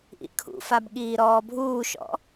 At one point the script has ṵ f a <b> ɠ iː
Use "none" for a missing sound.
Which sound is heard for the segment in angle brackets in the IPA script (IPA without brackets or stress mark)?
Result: b